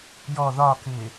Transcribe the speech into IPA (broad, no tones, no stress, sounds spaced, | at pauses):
j ɔ ð ɒ k ɪː